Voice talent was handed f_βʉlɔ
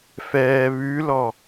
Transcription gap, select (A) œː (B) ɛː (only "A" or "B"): B